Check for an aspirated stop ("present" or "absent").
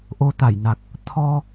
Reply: present